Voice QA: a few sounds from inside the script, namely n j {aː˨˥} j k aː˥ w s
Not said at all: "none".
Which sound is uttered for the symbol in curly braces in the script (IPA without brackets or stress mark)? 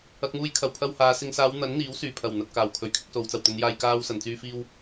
aː˧